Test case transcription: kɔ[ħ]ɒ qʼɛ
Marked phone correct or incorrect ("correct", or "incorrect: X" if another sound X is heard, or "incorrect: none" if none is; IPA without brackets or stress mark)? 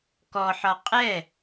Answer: correct